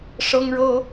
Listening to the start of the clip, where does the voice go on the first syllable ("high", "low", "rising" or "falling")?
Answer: high